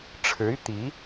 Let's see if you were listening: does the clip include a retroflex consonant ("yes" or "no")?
yes